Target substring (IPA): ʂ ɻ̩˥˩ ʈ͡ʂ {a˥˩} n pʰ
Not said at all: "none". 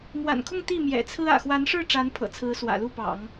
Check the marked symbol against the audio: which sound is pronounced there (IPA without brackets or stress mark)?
a˧˥